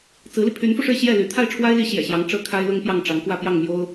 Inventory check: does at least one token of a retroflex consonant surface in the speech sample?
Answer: yes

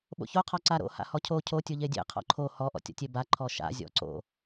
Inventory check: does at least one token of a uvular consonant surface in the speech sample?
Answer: yes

